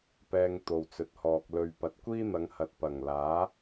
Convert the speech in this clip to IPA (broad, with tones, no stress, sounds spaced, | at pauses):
p ɛː˧ ŋ t̪ o˨ w t͡s ɵ˨˥ t̚ h ɔː˨ k̚ l ɵ˨ ɥ p ɐ˨ t̚ kʷ iː˥ n̪ ɐ˨˧ ŋ h ɐ˨ t̚ p ɐ˨˩ ŋ l aː˨˥